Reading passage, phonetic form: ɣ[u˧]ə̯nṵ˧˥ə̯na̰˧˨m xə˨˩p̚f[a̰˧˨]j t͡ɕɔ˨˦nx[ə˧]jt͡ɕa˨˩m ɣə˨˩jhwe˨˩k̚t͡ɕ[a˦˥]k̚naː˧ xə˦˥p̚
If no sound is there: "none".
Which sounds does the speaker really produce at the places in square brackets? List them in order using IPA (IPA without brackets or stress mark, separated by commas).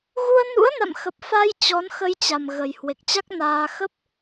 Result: u˧, a˧, ə˧, a˦˥